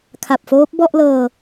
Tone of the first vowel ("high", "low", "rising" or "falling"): low